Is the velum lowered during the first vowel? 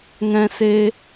yes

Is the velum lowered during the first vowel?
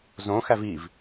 yes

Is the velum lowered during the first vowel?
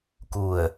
no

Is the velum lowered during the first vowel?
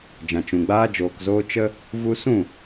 yes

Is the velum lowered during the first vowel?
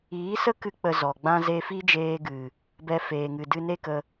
no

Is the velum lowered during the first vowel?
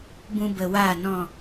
yes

